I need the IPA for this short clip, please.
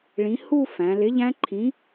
ɭĩ˨˥ hu˥˧ fæ̃˩˧lɪ˨˥ ʎæ̃˦˥ǃʰĩ˨˥

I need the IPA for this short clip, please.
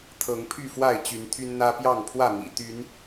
t̪ʰɤ˨˦ŋpʰy˥˨fwa˥˨ɪ̯ t͡ɕy˨˦nt̪ʰy˦nn̪ä˦ pjɑ˥˨ŋpʰwä˥˨mḭ˨˩t̪y˨˦n

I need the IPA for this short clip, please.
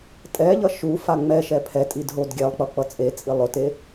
tʼɛʎʌ ʃufa ŋ͡mɛʃɛ pʰɛtʼidɦod ɡʲɛlˠk͡pʌk͡pʌ t͡sʼet͡sʼi lˠʊte

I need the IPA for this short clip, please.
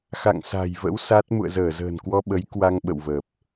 xa̰˧˨ŋsa̤˨˩jvə̰˧˥w sa˦˥t̚ mṵ˧˨ə̯zəː˧˩zə̤ː˨˩nkwɔ˧ ɓə˨˦j kwa˧ŋɓə̰˧˨wvə˨˩p̚

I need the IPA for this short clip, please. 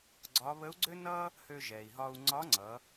ɡ͡ǀɒ˧˥ βə˧˥u̯ɡ͡ǀø˥ nʌ˥ | hø˧ʒɛ˩i̯ɦɒ˧u̯ ŋ͡ǀɒ˧˥ŋ͡ǀʌ˩˧

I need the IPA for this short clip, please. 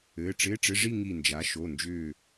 ɘː˩˧˩ʈ͡ʂɪː˧˥˧ʈ͡ʂɪ˧˥˧ ʐi˥˧ ŋi˧˩nd͡ʒa˩˥ ʃo˩˧˩nd͡ʒʏː˧˩

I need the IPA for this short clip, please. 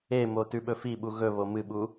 emo tʉɓɵfiɓu ɣɵβo mɨɓu

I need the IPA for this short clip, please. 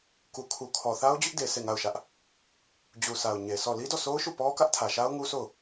ku˨kʰu˨ kʰɔ˨θa˦ʊ̯d͡ʑʊ˦ʔde˨ sʰe˦˨ŋa˦˨ʊ̯ʃä˦ʔ | d͡ʑu˨sʰa˨ʊ̯ ɲe˨sʰɔ˦˨ li˦dɔ˦˨sʰo˦ʊ̯ʃu˦˨ pɔ˦kä˦ʔtʰä˨ʃa˦ʊ̯ ŋu˦sʰo˦˨ʊ̯

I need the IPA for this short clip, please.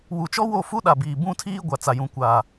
wu˨t͡ʃɔ˦ wo˦˨fu˦ɗa˨biː˨ bũ˦tʰiː˦ ɡʷa˨t͡sa˨ jũ˨kʷaː˨

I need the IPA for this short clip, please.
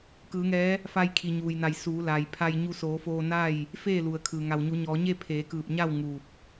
kɯː˩˧ŋɛː˧˥ | fa˧jkʰi˩ ɲuː˩jna˧˩j suː˩˧ la˩jpʰa˧j ɲu˧soː˩˧foː˧na˥˨j | feː˥˨lu˩ə̯kʰɯː˩ ŋa˩wɲu˩˧ɲɔː˩˧ɲe˥˨ pʰeː˩˧kɯː˧˩p̚ɲa˥˨w ŋuː˧˩p̚

